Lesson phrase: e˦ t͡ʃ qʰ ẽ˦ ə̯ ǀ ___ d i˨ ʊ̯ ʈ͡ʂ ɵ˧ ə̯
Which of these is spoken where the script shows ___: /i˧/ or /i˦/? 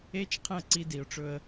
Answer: i˧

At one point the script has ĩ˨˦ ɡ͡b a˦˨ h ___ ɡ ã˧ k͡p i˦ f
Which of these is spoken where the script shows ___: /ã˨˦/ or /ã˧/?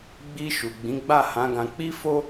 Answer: ã˨˦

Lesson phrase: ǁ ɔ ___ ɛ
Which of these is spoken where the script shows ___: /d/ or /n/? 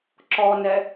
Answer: n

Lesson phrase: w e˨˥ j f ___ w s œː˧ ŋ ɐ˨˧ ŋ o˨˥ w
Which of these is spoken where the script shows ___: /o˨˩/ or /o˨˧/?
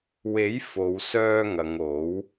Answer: o˨˧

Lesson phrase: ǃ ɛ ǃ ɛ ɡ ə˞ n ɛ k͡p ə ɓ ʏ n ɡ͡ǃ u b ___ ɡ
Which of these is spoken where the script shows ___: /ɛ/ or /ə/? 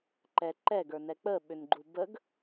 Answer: ə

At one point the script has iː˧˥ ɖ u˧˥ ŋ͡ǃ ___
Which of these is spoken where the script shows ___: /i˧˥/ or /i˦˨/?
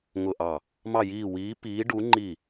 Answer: i˦˨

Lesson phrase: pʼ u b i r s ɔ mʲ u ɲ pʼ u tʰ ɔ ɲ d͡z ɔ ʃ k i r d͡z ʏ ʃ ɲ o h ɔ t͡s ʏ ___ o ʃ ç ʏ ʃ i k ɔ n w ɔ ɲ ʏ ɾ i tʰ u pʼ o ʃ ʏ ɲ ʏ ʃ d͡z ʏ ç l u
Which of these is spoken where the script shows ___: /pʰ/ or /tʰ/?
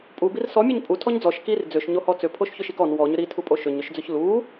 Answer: pʰ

